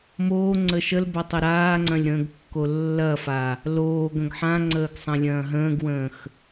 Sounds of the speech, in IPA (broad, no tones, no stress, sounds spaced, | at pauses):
m oː ŋ͡ǀ ə ʃ ə l b ɐ tˤ ə ɾ aː ŋ͡ǀ ɐ̃ lʲ ɾ ə̃ː ɡ kː o lː ɐ f a | l oː ɡ ə̃ ɡ ħ ã ŋ͡ǀ əː ɡ sˤ ɐ̃ lʲ ɐ̃ː ɦ ə̃ː ɡ w ə̃ː x